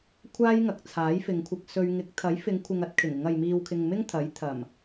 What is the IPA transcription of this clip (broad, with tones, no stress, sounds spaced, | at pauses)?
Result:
kʷʰ aː˥ j ŋ ɐ˨˥ k̚ t͡sʰ aː˨˥ j f ɪ˨ ŋ kʷʰ ɪ˧ k̚ s ɵ˧ ɥ ŋ ɪ˨˥ k̚ t̪ʰ ɐ˨˥ j f ɪ˨˧ ŋ kʷʰ ɪ˨ ŋ ɐ˨˥ t̚ kʰ ɪ˨˩ ŋ ɪ˨˧ ŋ ɐ˨ j m iː˨ w kʰ ɪ˨ ŋ m ɪ˥ ŋ t̪ʰ ɐ˨˥ j t̪ʰ ɐ˨˩ m